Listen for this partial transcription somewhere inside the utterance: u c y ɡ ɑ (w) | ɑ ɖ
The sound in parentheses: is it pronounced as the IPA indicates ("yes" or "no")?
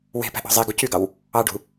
yes